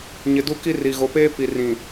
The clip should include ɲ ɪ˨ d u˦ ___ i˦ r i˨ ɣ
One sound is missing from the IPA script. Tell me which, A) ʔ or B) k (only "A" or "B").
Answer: B